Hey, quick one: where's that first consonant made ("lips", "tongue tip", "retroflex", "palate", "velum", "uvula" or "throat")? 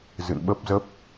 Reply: tongue tip